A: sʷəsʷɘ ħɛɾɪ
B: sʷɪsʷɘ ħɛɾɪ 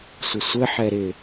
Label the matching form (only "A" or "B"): B